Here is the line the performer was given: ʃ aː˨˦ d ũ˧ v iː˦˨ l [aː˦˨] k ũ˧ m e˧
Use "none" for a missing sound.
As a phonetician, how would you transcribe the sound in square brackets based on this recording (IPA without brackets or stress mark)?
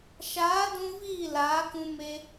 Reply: aː˨˦